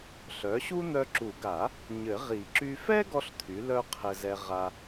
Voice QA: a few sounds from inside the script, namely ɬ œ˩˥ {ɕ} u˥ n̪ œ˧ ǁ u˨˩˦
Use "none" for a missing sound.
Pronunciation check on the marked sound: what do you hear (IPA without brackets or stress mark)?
ɕ